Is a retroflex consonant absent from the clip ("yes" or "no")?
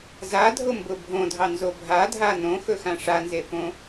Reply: no